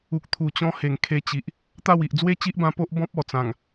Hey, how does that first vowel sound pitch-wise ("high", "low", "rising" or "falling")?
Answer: low